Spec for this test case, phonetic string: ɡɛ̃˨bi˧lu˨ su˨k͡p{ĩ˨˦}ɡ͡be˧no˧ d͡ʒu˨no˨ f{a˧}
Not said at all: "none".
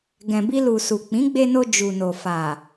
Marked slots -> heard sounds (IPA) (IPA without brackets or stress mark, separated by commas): ĩ˨˦, a˨